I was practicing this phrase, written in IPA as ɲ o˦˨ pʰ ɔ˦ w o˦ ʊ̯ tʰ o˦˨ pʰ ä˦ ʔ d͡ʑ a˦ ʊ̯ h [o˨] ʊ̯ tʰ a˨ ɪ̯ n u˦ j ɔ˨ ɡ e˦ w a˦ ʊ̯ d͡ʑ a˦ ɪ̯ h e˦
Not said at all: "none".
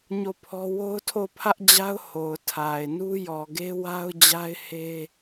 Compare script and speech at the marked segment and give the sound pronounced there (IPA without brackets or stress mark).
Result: o˨